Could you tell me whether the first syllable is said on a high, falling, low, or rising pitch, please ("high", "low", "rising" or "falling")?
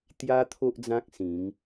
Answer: high